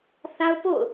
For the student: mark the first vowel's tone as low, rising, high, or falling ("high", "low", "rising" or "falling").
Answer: high